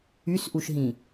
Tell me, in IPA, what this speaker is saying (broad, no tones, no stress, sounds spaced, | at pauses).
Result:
y s ʔ u ʃ ɦ ĩ